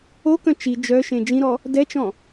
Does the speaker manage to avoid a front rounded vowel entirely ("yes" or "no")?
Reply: no